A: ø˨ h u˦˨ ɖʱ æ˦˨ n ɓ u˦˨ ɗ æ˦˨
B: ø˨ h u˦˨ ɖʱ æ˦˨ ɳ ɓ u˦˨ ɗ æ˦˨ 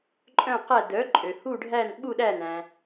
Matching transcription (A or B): A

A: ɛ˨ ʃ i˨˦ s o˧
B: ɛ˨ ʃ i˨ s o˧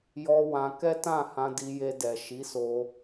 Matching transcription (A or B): A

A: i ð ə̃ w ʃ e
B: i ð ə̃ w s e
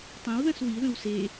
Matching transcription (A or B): B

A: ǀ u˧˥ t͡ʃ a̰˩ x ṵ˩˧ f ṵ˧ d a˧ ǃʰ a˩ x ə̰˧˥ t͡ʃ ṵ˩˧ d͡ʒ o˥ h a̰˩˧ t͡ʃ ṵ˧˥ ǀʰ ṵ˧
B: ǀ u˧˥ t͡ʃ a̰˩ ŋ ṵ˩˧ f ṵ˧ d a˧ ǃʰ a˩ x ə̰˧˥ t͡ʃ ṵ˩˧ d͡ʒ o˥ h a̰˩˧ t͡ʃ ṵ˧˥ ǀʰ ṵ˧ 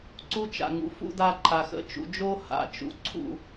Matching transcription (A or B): B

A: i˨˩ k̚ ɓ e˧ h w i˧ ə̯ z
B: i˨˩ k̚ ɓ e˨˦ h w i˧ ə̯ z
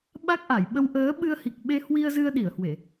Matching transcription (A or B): A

